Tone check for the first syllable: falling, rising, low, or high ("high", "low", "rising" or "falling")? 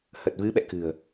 low